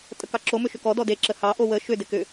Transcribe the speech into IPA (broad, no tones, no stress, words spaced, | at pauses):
tʼəkɑǁo mʏʃʏkɔ dɔde ǁəhɑ ʔowə ʃʏ dɪkʏ